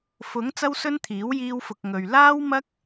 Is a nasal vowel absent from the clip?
yes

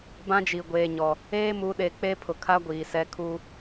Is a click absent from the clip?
yes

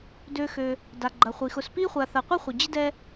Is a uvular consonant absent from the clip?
no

